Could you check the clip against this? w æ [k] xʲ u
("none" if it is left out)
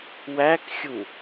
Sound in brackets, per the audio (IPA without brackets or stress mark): k